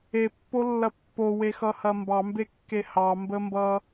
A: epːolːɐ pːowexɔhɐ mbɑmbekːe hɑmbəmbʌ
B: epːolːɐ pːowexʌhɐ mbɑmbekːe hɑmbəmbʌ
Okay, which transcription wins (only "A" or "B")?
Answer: B